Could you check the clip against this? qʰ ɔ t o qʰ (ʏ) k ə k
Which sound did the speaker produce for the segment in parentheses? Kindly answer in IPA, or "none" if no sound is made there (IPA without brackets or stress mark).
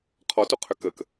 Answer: ʏ